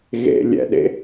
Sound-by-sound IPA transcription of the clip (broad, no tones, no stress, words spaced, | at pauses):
ɣḛlʲɛ̰ɗḛ